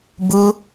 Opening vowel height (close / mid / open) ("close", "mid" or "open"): close